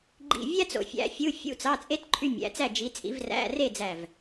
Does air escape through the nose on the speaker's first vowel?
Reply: no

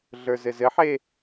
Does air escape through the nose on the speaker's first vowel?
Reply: no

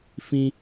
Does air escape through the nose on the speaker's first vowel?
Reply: yes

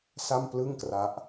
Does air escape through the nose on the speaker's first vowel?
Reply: no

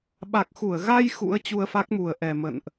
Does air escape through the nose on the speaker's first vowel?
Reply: no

